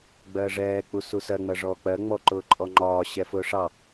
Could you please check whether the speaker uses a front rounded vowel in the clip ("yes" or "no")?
no